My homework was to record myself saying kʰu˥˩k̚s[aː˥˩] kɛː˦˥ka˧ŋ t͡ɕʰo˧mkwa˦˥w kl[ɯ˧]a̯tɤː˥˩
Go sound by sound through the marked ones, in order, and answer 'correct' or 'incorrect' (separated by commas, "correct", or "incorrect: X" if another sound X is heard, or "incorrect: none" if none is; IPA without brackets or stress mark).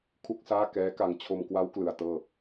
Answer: correct, correct